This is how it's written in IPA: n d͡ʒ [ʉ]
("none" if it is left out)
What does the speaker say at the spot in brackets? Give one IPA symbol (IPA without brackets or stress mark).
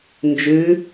ʉ